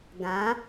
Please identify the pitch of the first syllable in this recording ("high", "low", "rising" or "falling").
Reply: rising